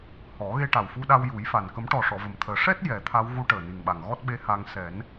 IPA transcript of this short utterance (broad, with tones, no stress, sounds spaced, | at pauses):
h ɔ˨˩˦ ɣ e˧ ʈ a˨˩ w f u˧ ɗ a˧ w j u˨˩˦ j f a˨˩ n k ə˨˩˦ m ʈ ɔ˨˩ ʂ ɔ˨˩˨ v ə˨˩ m t̪ʰ əː˨˩˦ ʂ ɛ˦˥ t̚ j ɛ˨˩˦ t̪ʰ a˧˥ w ɣ u˧˥ ʈ əː˨˩ n i˨˩ ŋ ɓ a˨˩ ŋ ɣ ɔ˦˥ t̚ ɓ e˧˥ h a˧ ŋ s ɛ˨˩˦ n